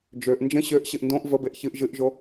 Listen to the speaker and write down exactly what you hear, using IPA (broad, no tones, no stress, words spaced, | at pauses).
d͡ʒøʔ nd͡ʒə̃ ɕøʔɕɨʔ ndõʔ vəbeʔ çɨʔ ʒɨʔʒo